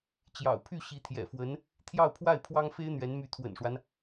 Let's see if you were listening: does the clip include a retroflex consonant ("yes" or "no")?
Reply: yes